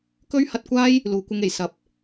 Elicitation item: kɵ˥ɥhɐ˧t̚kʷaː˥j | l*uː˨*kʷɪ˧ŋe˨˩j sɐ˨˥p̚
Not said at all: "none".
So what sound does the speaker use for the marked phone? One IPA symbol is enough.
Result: uː˨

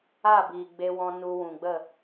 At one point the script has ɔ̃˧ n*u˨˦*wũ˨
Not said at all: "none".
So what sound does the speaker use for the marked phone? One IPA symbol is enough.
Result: u˧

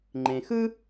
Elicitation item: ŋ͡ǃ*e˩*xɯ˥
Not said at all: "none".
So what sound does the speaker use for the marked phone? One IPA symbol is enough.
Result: ẽ˩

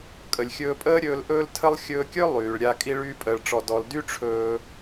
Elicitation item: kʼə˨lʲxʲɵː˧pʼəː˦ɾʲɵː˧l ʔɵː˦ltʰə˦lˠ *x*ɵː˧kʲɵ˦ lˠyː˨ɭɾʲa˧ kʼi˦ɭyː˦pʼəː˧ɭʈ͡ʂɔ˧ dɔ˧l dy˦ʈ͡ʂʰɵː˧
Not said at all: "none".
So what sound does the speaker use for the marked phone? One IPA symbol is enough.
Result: xʲ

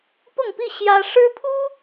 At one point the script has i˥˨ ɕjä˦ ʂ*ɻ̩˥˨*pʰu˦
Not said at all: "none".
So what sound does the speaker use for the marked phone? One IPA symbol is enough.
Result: ɻ̩˦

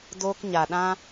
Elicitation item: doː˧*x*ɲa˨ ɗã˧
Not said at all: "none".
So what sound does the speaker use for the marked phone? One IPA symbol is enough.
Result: k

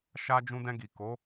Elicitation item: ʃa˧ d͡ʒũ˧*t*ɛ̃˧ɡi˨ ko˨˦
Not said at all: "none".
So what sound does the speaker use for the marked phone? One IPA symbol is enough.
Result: d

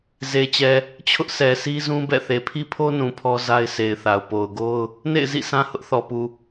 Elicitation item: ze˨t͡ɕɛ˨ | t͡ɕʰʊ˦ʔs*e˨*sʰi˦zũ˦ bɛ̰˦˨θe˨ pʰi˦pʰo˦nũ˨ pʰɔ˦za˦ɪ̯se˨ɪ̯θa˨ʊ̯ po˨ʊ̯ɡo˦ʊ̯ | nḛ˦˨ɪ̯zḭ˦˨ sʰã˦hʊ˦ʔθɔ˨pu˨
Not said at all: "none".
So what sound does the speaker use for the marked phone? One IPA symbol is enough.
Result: ɛ˨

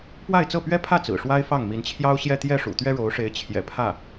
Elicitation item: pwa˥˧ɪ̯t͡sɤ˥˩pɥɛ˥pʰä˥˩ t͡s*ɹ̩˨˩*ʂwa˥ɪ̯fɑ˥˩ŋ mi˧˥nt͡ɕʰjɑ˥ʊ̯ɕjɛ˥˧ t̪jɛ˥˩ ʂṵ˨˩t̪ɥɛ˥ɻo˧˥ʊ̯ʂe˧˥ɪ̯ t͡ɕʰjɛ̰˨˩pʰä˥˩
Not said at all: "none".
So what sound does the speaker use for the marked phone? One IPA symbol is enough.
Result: ɹ̩˨˩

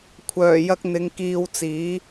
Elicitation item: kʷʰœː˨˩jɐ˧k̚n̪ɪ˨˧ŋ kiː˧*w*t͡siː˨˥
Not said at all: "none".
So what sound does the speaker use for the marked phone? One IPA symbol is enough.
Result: w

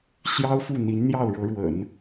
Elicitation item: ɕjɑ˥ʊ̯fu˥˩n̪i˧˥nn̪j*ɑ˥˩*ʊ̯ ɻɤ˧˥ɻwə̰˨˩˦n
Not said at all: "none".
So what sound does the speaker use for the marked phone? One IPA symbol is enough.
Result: ɑ˥˩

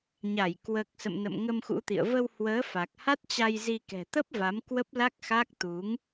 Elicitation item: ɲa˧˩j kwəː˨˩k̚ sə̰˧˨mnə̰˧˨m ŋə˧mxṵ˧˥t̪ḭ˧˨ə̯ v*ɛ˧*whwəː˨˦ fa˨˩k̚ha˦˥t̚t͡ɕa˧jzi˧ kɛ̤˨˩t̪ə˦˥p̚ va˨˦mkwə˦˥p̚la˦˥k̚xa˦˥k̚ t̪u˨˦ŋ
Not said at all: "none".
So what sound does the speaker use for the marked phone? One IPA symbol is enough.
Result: ə˧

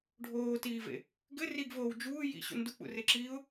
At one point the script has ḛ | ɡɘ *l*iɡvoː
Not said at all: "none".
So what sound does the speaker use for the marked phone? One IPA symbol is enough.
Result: r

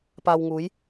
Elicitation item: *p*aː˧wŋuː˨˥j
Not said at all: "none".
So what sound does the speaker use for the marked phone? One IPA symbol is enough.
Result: p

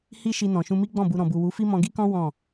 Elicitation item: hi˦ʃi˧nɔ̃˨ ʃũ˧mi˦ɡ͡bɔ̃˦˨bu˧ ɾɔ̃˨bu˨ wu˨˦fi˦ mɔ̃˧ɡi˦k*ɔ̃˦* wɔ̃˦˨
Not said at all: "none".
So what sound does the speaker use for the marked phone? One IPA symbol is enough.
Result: ɔ̃˦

